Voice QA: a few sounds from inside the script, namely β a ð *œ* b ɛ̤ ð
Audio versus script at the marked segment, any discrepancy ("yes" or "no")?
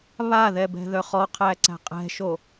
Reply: yes